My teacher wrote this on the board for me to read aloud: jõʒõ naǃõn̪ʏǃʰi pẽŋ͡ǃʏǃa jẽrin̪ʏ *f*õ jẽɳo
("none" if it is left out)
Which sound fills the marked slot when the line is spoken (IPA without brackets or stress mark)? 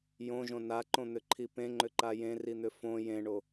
f